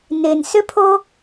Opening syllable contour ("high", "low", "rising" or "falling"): low